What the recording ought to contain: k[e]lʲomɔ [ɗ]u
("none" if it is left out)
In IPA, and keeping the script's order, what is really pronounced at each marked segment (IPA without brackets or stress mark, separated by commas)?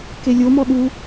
e, ɗ